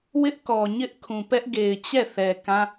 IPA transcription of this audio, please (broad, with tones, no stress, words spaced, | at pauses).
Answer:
wɪ˦ʔkɔ˨ɲɪ˦ʔkʰũ˨ pɛ˦ʔɡe˨ɪ̯t͡ɕɛ˦˨ θɛ˨kã˦